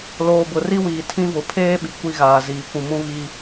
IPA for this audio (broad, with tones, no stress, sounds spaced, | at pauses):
l oː˨ b ʊ˨ r i˦ w iː˨ tʰ ĩ˦ v ʊ˨ pʰ eː˦ ɓ i˨ kʷ i˦ ɣ aː˨ z iː˨ kʷ ũ˨ m ũ˦ β i˦